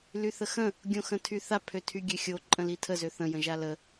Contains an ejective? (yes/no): yes